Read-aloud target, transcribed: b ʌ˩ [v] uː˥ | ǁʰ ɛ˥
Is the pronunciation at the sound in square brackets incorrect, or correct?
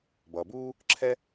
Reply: incorrect